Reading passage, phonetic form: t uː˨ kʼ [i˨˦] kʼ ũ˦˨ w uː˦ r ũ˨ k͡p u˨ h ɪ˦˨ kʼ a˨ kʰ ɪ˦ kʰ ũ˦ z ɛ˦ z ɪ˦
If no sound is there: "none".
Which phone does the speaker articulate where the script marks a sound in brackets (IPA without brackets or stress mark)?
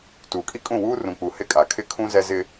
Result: i˦